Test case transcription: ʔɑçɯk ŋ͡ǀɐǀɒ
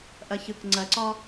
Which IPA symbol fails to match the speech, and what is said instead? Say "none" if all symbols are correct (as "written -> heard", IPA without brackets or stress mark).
ɑ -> ɐ